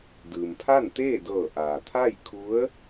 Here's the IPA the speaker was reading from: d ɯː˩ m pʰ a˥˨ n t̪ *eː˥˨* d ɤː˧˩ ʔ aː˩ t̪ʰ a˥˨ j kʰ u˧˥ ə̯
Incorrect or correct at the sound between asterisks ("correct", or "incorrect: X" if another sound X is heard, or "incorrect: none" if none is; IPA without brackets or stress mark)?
correct